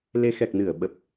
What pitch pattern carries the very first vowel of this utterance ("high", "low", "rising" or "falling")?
rising